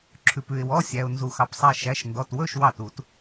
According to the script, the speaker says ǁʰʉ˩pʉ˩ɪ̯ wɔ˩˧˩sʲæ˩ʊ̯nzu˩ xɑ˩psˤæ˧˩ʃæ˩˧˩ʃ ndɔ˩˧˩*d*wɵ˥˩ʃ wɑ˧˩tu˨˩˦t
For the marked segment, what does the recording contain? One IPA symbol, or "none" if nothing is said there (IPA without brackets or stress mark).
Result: t